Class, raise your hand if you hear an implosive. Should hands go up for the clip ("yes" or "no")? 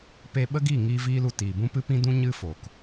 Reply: yes